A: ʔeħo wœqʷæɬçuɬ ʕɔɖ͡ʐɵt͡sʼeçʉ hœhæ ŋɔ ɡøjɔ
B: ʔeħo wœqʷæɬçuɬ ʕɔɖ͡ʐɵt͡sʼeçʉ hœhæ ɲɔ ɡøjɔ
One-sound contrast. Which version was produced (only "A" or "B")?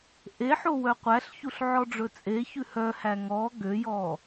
A